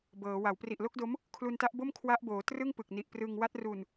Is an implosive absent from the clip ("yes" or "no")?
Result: yes